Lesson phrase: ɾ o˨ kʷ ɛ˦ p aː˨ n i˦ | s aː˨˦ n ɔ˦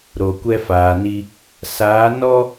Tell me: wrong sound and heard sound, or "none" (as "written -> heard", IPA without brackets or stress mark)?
p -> f